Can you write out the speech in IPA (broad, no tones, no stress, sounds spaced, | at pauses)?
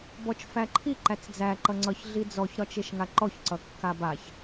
b ɔ t͡ʃ f æ ǃʰ i ǃ æ t͡s d͡z æ ǃ ʌ ŋ͡ǀ ʌ ç ɮ i d͡z ɔ ç ɾ ɒ t͡ʃ e ʃ ŋ a ǃ ɔ ç ǀ ʌ kː a b a ç